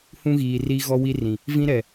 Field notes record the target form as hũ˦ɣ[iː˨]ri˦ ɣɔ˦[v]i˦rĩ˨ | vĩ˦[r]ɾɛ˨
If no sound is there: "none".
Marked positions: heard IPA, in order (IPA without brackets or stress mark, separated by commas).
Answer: iː˨, w, none